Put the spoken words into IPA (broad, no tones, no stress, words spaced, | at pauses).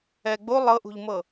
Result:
ɛɡ͡bo lˠɤʔṳʎmɤ